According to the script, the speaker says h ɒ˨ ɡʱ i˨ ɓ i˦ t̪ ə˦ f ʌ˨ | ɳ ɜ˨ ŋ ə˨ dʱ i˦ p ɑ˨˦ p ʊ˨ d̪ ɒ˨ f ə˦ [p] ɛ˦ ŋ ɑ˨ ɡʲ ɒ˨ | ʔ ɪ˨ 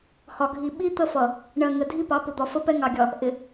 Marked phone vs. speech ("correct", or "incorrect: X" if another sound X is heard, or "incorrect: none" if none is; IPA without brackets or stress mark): correct